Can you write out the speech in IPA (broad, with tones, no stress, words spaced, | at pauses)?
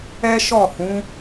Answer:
ɛ˦ʃɔ˦˨hũ˨˦